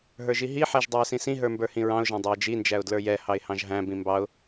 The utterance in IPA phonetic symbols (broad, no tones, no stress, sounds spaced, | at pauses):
ɦ ə˞ ʒ i ɦ i ħ æ ʒ dˤ ə˞ ɪ̯ s ĩ s ĩ ɦ ə˞ m b ə˞ h ĩ ɹ ɑ̃ ʊ̯ ʒ æ̃ dˤ æ ɪ̯ d͡ʒ i n d͡ʒ æ ʊ̯ d l ə˞ j ɛ h ɑ ɪ̯ h ɑ̃ ʒ ɦ æ̃ b ĩ m b ɑ ʊ̯